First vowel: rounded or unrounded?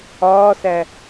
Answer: rounded